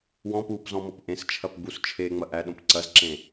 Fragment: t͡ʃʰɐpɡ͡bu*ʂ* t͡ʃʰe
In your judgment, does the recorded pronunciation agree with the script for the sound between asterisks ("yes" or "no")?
no